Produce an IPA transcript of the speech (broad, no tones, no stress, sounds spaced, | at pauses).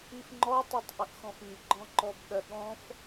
i f ŋ͡ǃ ɔ tˤ ɨ tˤ ʔ ə ʔ x ɔ̃ f i ɡ͡ǃ ɔ̃ ǃ ɔ b ɠ ɜ ɠ ɔ̃ f